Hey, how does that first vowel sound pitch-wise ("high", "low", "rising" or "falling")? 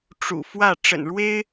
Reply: low